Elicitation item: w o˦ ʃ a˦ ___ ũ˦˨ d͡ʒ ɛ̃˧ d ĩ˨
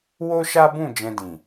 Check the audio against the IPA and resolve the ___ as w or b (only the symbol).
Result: b